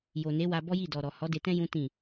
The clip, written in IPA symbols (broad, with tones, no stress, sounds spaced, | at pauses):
j o˨ n e˨˦ w a˧ b ɔ˦ j i˦˨ d ɔ˨ ɾ ɔ˨ h ɔ˨˦ d e˧ t ɛ̃˦ j ũ˦ t ĩ˦˨